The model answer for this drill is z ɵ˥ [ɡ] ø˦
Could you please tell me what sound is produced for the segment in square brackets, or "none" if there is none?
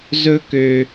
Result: k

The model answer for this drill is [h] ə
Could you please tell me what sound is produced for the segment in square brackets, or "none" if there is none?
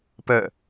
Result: p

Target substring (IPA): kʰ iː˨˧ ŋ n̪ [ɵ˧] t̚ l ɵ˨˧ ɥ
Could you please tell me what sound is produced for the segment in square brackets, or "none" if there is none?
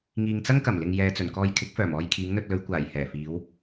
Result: ɵ˧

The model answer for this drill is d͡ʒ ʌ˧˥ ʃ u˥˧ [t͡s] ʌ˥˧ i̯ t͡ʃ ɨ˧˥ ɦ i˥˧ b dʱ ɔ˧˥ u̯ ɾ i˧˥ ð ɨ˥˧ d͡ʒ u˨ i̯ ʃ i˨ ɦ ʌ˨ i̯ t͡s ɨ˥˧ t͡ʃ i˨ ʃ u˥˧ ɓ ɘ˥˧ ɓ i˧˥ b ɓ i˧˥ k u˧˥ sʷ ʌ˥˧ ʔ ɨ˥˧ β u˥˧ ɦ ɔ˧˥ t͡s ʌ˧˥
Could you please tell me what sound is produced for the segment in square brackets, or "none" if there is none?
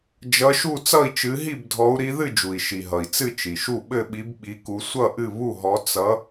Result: t͡s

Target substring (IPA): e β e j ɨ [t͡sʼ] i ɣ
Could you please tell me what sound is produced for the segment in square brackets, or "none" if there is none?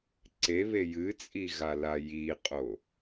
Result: t͡sʼ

